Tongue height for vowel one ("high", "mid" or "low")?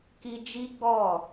high